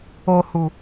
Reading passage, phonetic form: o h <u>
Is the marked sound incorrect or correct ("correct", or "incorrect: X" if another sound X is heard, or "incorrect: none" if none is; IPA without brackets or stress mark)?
correct